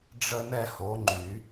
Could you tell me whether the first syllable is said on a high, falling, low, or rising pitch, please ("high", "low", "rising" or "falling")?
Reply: high